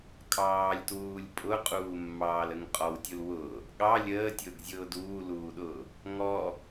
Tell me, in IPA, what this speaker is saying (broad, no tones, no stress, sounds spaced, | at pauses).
kʼ ɑː lʲ t w uː lʲ pʼ ʊ qʼ uː mː ɑː l ə ŋ qʼ ɔ w tʲ u l w ʊː | ɠ ɑ lʲ əː tʲ ʊː ɡ zʲ ʊː d uː l uː ɗ ʊː | ŋ ɔ